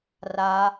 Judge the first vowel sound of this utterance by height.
low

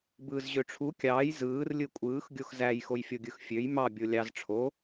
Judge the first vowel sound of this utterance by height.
high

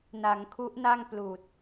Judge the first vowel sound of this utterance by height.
low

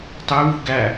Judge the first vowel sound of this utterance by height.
high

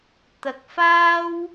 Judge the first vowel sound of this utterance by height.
low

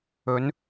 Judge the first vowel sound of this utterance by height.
mid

